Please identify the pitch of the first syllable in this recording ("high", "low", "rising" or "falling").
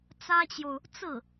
high